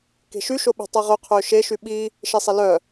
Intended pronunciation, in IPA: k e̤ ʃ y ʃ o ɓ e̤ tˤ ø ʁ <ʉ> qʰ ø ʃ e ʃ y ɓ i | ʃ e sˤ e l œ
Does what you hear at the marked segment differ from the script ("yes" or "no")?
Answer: yes